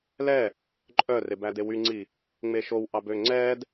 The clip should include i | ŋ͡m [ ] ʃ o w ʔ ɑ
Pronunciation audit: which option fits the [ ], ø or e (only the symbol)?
e